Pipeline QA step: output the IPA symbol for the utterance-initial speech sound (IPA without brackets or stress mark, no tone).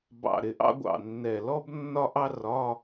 b